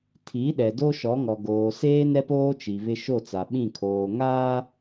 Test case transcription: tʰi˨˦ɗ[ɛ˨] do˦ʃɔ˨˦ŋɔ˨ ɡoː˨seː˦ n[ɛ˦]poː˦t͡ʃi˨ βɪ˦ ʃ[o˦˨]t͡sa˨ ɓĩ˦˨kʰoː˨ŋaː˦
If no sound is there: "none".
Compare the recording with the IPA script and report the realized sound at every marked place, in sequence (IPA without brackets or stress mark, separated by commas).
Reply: ɛ˨, ɛ˦, o˦˨